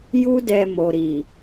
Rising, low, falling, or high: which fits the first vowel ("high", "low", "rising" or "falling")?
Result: high